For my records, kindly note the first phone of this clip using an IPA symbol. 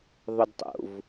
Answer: ðˤ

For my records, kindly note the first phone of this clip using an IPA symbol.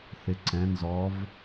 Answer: θ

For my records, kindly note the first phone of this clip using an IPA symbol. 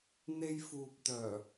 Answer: n̪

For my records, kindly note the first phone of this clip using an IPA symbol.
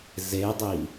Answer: z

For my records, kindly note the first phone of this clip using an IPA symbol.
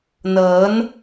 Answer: n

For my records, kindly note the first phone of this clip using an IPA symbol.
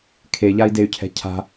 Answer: kʰ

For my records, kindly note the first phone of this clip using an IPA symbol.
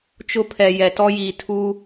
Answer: t͡ʃ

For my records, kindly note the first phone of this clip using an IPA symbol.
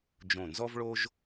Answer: d͡ʒ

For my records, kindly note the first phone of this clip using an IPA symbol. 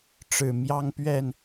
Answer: ʈ͡ʂ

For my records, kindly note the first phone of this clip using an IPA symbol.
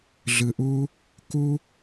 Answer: ɮ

